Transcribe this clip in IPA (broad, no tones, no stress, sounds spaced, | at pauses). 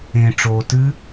ẽ ʈ͡ʂ oː t ɨ